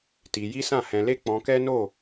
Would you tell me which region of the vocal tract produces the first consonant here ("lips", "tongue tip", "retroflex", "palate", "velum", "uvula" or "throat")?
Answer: tongue tip